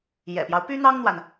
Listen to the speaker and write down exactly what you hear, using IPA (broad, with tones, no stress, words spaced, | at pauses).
jɛ̰˨˩pjɑ˦ʊ̯ py˥n̪ɑ˥ŋn̪wa˨n